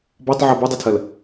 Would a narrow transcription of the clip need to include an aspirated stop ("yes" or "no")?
yes